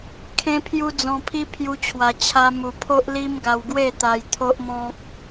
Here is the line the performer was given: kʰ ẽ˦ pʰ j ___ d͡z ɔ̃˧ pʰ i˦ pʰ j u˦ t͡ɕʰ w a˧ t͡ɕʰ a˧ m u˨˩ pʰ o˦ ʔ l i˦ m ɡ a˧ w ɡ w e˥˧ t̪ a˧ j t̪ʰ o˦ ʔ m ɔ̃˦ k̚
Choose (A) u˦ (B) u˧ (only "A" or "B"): A